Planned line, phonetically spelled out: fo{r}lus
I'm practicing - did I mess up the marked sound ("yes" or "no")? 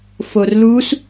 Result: no